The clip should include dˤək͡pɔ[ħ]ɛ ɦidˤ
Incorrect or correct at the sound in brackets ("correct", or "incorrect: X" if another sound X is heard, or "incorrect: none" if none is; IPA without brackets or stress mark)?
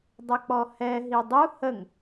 incorrect: h